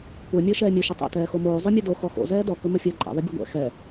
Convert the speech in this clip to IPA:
kʷ ɛ mʲ əː ʃ ɛː mʲ ɵ ʃ ə tˤ o̰ t ɛː x o m oː zˤ o mʲ ɛ d o x ɔ x o̰ z ɛː d ɔ k ɵ m ə fʲ əː ǃʼ ɛ̰ ðˤ ə bʲ ɵ ɡʷ ɛ̰ x ɛ

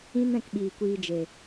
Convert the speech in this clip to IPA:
ĩ˦ n ɛ̃˧ k ɓ iː˨ kʷ iː˧ d͡ʒ e˨

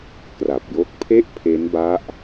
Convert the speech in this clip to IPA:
k r a˨˩ p̚ j o˦˥ k̚ pʰ e˥˩ ʔ pʰ e˦˥ n b a˦˥ ʔ

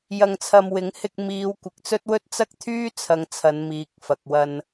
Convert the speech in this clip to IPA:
j ɐ˧ ŋ t͡sʰ ɐ˧ m w ɪ˨˥ ŋ h ɪ˧ k̚ m iː˨˧ w kʷ ɪ˨ k̚ t͡s ɵ˥ t̚ w ɵ˥ t̚ t͡s ɐ˥ k̚ t̪ʰ yː˥ t͡sʰ ɐ˨˧ ŋ t͡sʰ ɐ˨˧ n m iː˨ k̚ f ɐ˨ k̚ w ɐ˧ n

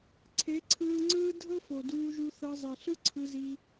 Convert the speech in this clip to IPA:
ǀʰ e˨˦ ǀʰ ɯː˧ ŋ͡ǀ ɯː˦ dʱ ɤ˦ f o˨ d uː˧ ʒ u˧ θ ɤ˧ zˤ e˨ ɬ ɯ˦ ǀʰ ɯ˧ z i˧

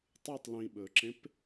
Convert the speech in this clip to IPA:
tˤ ɨ tˤ l ĩ ɓ ɵ ǁ ẽ p

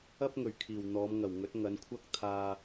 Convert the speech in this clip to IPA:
ɐ˥ p̚ ŋ ɵ˨˩ ɥ kʰ iː˨˩ w n̪ ɔː˨˧ m ŋ ɐ˨˩ w ŋ ɵ˨˥ t̚ ŋ ɐ˨˧ n kʷʰ ɐ˥ k̚ t̪ʰ aː˧

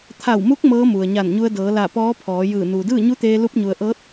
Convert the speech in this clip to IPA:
t̪ʰ a˧˩ w m u˧˥ k̚ m ɤː˧˥ m u˩ ə̯ ɲ a˧˩ n ɲ u˧ ə̯ d ɤː˩˧ l a˧˩ p ɔː˧˥ pʰ ɔː˩˧ j ɯː˧˩ n uː˩ d ɯː˥˨ ɲ u˧˥ t̪ eː˧ l u˧ p̚ ɲ u˩ ə̯ ʔ ɤː˧˥ t̚

